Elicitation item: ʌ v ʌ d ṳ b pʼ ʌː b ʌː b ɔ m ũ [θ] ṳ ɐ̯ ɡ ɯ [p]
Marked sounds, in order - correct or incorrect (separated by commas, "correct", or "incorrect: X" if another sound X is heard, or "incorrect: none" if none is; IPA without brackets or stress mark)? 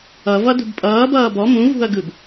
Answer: incorrect: v, incorrect: b